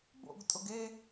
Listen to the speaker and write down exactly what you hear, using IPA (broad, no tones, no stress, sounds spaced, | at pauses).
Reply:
b o̰ ɡ tʼ ʊ ɡ e